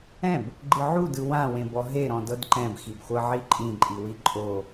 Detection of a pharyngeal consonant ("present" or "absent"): present